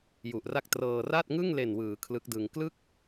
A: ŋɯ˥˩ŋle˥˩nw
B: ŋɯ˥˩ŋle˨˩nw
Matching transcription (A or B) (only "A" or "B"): B